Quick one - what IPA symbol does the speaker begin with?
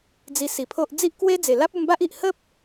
d͡z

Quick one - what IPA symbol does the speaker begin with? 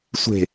sʷ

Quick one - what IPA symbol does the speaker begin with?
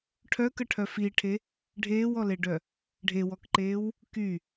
ʈʰ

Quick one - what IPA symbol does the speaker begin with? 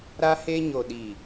ɾ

